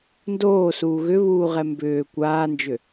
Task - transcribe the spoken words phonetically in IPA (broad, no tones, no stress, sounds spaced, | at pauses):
n d oː s uː ɣ ʏ β uː ʁ ɛ m b ʏː kʷ aː n d͡ʒ ʏ